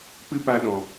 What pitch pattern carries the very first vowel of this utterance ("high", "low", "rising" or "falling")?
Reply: high